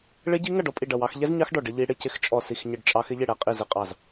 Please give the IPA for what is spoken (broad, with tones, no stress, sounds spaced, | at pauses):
ɭ ɪ˦˥ ɟ i˦˥ ŋ ʌ˥˨ ɖ ɔ˦˥ pʼ i˥˨ ɖ ʌ˥˨ w ɑ˦˥ x ʎ ɛ˦˥ z ɲ ɑ˦˥ x ɖ ɔ˥˨ ɖ ɪ˦˥ ʎ i˦˥ ɽ ɪ˥˨ c ɪ˦˥ x t͡ʃʼ ɔ˥˨ s i˥˨ x ɲ ɪ˥˨ ɖ t͡ʃʼ ɑ˦˥ x ɪ˦˥ ʎ ɪ˥˨ ɽ ɛ˥˨ qʼ i˥˨ z ɪ˥˨ qʼ ɑ˥˨ z